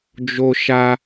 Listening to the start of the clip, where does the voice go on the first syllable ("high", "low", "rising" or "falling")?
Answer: high